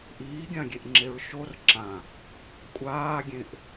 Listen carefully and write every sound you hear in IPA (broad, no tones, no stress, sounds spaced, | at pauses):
ʔ iː ɡʲ ã ɡʲ e ʔ ŋ͡ǁ e ɹ ʃ o r ǁ ã | kʷʼ aː ɡʲ ẽ ʔ